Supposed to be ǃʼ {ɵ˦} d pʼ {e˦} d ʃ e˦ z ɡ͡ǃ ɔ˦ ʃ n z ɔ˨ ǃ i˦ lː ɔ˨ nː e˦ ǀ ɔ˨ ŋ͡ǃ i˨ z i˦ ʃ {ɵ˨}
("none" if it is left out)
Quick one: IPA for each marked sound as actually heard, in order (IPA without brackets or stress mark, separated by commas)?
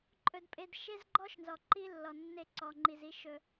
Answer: ɵ˦, e˦, ɵ˦